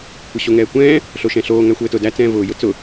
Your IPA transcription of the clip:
kʷ ɘ ɕ o ŋ ɛː kʷ ɛ̃ː | ɬ o ʃ ɛ̃ ɬ oː ŋ æ xʷ ɘː t ʊ d æ t͡s ɛ̃ː v ʊː j ʊ t͡s ʊ

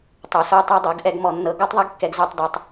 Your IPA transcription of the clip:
tˤ o˨ s o˧ tˤ ɛ˧ dˤ ɤ˨˦ ɡ ʔ ɛ˧ ɡ m ɔ˧ nː ɤ˧ ɡ o˦ tˤ ðˤ ɛ˦ ɡ kː ɛ˧ ɡ z o˧ tˤ d ɛ˧ tˤ

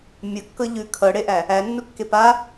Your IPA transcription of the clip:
mʲ ʌ kː ɤ ʎ ʉ kʰ ɤ ɽ e ʔ æ | æ nː u kː e p a

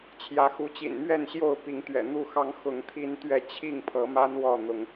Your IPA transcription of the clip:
t͡ɕʰ j ä˨˦ x u˨˦ t͡ɕ ḭ˨˩ n m ɥ ɛ˥˨ n ɕ j o˥˨ ʊ̯ p i˨˦ ŋ t̪ ɥ ɛ̰˨˩ n̪ u˥˨ x ɑ˦ ŋ x ʊ˨˦ ŋ t̪ʰ i˦ n t̪ ɥ ɛ˥˨ t͡ɕʰ i˥˨ ŋ pʰ ɤ˨˦ m a˦ n w ɔ˥˨ n̪ ʊ˨˦ ŋ

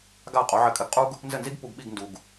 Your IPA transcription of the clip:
ɡ a˥˩ qʼ o˩˥ ʕ ɘ˧ kʼ ɘ˧ ɡ qʼ u˥ ɡ | n z ɘ˥˩ n z i˥ ɡ p u˧ ɡ ɓ i˥˩ ɡ n d u˩ ɡ

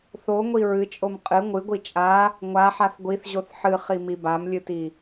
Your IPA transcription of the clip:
θ o ŋʷ i ɹ ɨ t͡ʃʼ o m qʼ ɨ ŋʷ ɨ ɡʷ i t͡ʃʼ a | ŋʷ a ħ a θ ɡʷ i θ ʑ o θ ħ ɨ χ i m i b a m lʲ ɨ t i

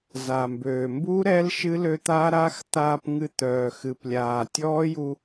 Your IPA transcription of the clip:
z a˩ m b øː˩ m b u˦˥ ɾ ɛ˦˥ l ʃ ɨ˦˥ l ø˧ t̪ a˦˥ ɾ aː˦˥ x t̪ aː˧ p ŋ ɨ˧ t̪ œː˩ x ɨ˩ p lʲ aː˩ tʲ ɔː˦˥ j u˧

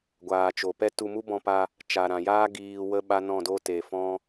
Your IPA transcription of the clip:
ɡʷ aː˨ t͡ʃ o˨ p ɛ˦ t u˧ m u˦ b ɔ̃˧ p a˧ | t͡ʃ a˨ ɾ ã˨ j aː˦ ɡ iː˨ w ə˦ ɓ a˦ n ɔ̃˦˨ d o˦ t e˨ f ɔ̃˦

